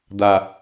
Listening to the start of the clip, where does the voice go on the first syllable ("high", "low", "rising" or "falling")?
low